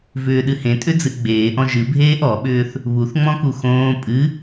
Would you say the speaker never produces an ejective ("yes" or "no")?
no